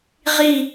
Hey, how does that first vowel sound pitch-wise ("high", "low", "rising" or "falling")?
falling